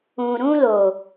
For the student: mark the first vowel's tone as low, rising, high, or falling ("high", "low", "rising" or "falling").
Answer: low